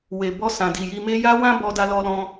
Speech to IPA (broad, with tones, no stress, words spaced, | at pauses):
we˨ bɔ˧ sã˨di˨ji˧me˦ ja˦wã˦bɔ˧ da˧lɔ˧lɔ̃˧